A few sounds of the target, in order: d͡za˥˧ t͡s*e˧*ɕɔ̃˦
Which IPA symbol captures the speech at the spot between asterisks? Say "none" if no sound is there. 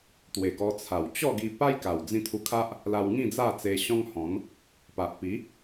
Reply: e˧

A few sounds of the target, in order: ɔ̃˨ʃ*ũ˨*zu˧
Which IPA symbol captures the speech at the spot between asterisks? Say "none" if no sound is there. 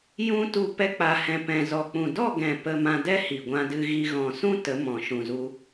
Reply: ũ˨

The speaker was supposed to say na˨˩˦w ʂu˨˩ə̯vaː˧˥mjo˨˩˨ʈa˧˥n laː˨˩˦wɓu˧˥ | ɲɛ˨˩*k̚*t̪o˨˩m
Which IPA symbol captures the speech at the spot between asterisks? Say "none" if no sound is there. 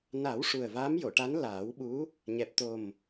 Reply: p̚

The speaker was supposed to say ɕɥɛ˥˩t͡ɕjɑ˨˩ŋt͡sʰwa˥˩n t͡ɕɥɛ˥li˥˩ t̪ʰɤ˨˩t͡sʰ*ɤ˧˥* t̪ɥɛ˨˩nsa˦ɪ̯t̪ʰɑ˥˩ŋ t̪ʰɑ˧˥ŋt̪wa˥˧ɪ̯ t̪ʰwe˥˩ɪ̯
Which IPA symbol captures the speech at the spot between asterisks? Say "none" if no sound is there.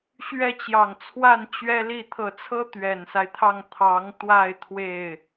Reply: ɤ˥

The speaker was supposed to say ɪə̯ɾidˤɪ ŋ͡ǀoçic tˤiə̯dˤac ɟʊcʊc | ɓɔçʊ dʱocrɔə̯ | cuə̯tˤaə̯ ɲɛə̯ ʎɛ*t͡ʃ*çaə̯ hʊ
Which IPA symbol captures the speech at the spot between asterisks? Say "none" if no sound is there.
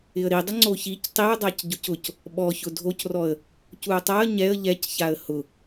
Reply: c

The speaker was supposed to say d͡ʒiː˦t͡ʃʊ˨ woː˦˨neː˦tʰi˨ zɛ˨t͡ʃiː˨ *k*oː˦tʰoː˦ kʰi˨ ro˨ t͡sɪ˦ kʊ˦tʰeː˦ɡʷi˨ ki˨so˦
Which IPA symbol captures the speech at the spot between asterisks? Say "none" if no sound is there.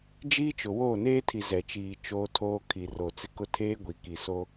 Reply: t͡ʃ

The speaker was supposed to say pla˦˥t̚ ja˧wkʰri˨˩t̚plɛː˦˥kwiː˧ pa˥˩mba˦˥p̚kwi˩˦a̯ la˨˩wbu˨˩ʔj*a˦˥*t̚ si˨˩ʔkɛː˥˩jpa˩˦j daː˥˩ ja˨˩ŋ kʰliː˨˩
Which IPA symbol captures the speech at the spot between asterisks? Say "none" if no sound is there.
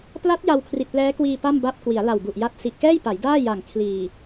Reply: a˦˥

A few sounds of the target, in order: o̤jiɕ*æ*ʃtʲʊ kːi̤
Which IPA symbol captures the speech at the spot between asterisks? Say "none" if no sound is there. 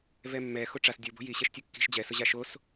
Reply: ɛ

